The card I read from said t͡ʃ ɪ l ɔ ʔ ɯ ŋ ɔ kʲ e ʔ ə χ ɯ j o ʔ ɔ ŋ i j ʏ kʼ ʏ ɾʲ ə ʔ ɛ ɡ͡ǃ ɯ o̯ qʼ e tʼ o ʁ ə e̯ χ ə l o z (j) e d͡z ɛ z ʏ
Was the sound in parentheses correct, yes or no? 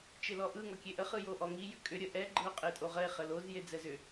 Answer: yes